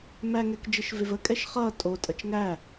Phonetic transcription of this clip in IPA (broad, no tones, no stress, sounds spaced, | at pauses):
m æ ŋ ɛ k d͡ʒ e ʃ v e v ə kʼ ɛ ʃ χ ʌː tʼ o tʼ ʌ t͡ʃ ŋ æ